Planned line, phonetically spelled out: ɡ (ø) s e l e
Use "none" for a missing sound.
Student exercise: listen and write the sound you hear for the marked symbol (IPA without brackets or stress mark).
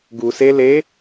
u